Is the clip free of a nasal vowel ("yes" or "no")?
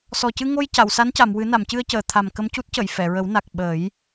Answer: yes